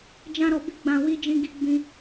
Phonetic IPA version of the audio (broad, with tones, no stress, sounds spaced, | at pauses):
d͡ʒ ã˦ ɾ ɔ˧ b i˦ ɡ͡b ã˧ w i˦ d͡ʒ ĩ˦ ɡ i˦ ɡ͡b ĩ˦